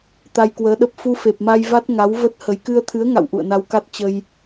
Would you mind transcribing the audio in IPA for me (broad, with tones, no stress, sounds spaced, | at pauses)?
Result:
t̪ a˧ j k w əː˨˦ ɗ ə˦˥ p̚ f u˧ f e˨˩ p̚ m a˧ j v a˦˥ t̚ ŋ a˨˦ w v ə˦˥ t̚ h ə˨˦ j k ɨ˧ ə̯ t̪ʰ ɨ˨˦ ə̯ ŋ a̰˧˨ w ʔ ṵ˧˨ ə̯ n a˧ w k a˦˥ t̚ t͡ɕ ə˧ j